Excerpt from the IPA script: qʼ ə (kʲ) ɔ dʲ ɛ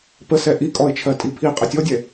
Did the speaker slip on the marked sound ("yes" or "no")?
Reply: yes